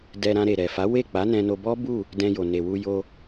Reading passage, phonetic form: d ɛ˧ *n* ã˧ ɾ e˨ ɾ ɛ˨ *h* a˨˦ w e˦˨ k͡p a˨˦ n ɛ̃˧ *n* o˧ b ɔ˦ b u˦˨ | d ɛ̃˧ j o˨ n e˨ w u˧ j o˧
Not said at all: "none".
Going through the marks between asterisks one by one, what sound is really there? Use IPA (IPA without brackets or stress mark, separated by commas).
ɾ, f, n